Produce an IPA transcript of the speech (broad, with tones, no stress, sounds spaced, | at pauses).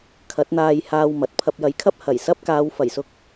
kʰ ɐ˨˥ t̚ n̪ aː˧ j h aː˧ w m ɐ˨˥ t̚ pʰ ɐ˧ p̚ j ɐ˨˥ j kʰ ɐ˥ p̚ h ɐ˨˩ j s ɐ˥ p̚ k aː˨˧ w f ɐ˨˩ j s ʊ˧ k̚